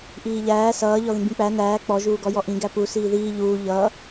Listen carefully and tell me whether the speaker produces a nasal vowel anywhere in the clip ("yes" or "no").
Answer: yes